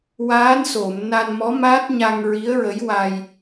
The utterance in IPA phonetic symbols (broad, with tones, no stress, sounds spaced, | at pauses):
w aː˧˥ n s o˨˩˨ m n a˧ n m ɔ˧˥ m a˦˥ t̚ ɲ a˧ ŋ ɹ i˧˥ ə̯ ɹ ə˧˥ j w a˧ j